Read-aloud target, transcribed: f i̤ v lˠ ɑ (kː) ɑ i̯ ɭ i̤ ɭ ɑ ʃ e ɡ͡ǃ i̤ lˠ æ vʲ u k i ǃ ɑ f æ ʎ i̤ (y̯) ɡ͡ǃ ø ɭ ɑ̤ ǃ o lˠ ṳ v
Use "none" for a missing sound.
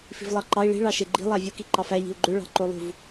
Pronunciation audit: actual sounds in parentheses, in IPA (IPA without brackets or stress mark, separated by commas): ǃ, u̯